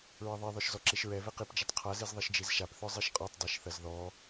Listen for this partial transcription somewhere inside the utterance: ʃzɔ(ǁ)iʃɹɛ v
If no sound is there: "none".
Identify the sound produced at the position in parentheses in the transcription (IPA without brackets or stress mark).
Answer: ǁ